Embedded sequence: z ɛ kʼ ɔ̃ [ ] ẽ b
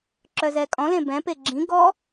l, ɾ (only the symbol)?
l